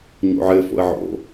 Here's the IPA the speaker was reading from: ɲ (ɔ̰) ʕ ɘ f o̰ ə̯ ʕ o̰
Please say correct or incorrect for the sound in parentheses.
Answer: incorrect